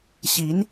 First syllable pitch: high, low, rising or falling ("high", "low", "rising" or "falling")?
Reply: rising